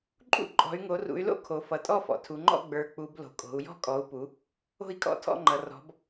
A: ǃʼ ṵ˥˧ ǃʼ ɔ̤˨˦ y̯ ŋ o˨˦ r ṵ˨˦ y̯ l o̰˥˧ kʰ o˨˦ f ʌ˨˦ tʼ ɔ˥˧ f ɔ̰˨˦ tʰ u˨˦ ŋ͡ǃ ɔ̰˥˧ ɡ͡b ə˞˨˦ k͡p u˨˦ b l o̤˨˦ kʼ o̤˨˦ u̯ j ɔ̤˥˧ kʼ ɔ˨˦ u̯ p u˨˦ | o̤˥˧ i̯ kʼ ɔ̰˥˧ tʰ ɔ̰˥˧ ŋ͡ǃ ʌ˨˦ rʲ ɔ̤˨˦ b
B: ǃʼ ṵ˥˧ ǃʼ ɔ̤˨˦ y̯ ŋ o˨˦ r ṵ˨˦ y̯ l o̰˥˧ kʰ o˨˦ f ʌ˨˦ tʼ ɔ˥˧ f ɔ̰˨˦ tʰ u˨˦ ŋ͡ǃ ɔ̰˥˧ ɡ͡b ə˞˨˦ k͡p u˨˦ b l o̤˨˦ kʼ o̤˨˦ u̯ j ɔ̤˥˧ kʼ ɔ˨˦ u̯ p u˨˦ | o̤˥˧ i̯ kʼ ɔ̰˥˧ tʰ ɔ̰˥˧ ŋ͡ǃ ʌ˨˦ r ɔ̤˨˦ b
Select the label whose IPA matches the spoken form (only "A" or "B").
B